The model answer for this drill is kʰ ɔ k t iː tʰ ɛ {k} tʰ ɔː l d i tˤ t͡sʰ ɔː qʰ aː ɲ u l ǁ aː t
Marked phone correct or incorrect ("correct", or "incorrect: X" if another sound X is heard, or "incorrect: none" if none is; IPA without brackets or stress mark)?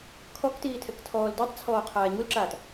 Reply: correct